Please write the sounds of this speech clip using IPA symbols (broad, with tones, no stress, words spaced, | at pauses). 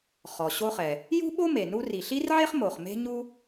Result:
χɔ˩ɕo˥χɛ˩ | jṳ˥ɓo˥ me˩nu˥ ri˩ɬi˥rʕe˥χmo˩χ me̤˥ɲu˥